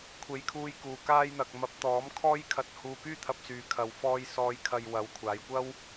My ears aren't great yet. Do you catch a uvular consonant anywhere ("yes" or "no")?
no